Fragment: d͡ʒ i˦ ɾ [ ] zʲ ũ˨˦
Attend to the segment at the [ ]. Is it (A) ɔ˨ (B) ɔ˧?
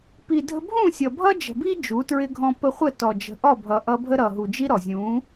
A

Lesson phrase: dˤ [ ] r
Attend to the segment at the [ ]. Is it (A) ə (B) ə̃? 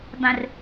B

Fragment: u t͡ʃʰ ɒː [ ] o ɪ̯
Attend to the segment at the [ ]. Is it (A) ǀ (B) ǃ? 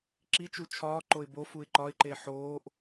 B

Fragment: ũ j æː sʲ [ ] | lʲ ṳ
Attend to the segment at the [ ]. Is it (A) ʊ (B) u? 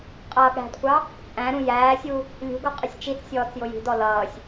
B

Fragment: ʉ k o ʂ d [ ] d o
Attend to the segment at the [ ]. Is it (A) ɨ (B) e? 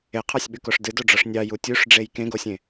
A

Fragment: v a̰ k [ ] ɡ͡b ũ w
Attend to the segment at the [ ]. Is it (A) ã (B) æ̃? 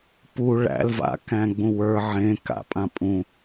B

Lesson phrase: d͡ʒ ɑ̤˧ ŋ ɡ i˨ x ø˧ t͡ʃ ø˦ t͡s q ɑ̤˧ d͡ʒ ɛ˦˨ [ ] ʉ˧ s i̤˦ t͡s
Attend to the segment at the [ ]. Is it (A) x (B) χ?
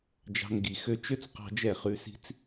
B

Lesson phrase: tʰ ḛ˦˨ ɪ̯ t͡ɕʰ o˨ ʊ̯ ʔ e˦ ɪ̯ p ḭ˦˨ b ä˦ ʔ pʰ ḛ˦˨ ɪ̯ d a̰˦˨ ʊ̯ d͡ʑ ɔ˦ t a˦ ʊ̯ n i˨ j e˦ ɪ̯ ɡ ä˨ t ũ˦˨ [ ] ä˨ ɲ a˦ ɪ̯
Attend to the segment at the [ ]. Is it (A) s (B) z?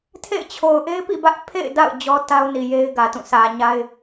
A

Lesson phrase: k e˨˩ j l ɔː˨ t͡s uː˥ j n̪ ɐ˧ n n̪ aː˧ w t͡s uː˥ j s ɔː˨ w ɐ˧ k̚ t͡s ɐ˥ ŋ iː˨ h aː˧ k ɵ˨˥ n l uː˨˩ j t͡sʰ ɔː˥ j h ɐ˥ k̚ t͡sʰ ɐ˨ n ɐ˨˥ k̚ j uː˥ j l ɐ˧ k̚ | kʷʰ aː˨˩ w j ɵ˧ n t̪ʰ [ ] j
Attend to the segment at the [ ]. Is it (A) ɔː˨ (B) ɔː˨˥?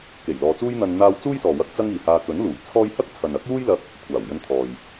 A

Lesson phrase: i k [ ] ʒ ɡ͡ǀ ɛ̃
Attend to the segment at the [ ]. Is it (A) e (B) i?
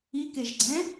A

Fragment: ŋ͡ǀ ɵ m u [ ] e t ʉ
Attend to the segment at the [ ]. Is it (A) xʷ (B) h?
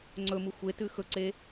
A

